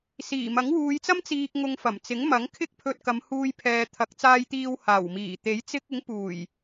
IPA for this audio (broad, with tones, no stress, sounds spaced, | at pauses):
s iː˨˩ m ɐ˨˥ ŋ w uː˨˧ j t͡s ɐ˥ m t͡s iː˨ k̚ ŋ ʊ˨ ŋ f ɐ˨˩ m t͡s ɪ˨˥ ŋ m ɐ˨˥ ŋ kʰ ɪ˥ k̚ pʰ ɵ˧ t̚ k ɐ˨˧ m h uː˧ j pʰ ɛː˨ t̪ʰ ɐ˨˥ k̚ t͡s aː˨ j t̪ iː˨ w h aː˨˩ w m iː˨˩ t̪ e˨˥ j t͡s ɪ˧ k̚ ɪ˨˥ ŋ p uː˨˩ j